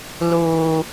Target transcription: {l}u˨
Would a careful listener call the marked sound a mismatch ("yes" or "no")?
no